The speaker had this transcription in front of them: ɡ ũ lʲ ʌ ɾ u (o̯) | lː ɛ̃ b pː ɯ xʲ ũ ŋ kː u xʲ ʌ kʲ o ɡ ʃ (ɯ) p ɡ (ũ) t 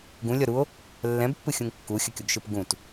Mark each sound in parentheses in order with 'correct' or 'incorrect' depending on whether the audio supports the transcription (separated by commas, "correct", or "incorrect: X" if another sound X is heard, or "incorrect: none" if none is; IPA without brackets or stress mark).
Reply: correct, correct, correct